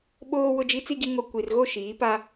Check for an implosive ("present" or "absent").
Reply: present